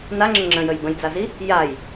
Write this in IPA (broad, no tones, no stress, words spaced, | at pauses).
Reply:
naŋ͡ǁə ŋ͡ǁə̃jəj bə̃jd͡zazi | jaj